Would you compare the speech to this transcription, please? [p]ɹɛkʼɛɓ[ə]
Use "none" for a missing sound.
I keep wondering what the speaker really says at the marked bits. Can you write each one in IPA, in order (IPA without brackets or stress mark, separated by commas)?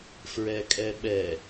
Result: f, ɛ